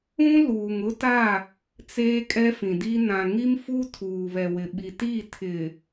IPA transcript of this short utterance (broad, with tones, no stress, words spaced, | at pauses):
ũ˦ luː˨ŋʊ˦ta˦˨ | t͡seː˦kʼɛ˦fĩ˨di˦ nã˨ŋi˦mfu˦ tʰuː˨βɛ˨wɪ˨ ɓi˨ti˦˨ tʰɪ˨